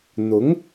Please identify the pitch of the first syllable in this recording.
rising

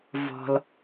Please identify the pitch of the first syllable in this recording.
low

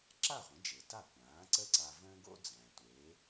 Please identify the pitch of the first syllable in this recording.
falling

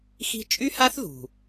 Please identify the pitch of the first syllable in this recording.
high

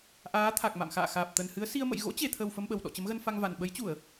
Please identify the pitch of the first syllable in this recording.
rising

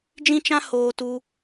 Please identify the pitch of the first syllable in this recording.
high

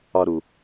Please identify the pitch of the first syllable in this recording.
low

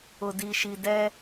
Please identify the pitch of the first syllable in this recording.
low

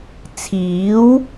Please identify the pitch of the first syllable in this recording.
rising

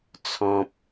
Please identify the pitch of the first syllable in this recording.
low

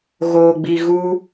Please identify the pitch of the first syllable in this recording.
low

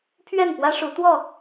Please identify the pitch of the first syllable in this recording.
falling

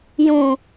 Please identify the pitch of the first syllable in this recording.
low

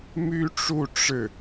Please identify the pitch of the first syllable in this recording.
high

